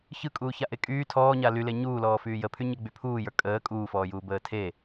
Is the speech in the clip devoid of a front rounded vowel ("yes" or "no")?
no